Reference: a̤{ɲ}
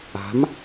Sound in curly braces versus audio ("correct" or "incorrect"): incorrect